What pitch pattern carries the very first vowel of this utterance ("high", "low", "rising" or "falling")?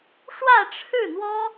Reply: falling